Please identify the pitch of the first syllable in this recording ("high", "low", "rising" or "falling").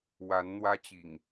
rising